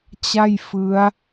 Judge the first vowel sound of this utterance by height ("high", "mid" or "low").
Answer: low